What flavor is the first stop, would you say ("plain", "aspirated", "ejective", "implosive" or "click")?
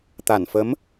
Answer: plain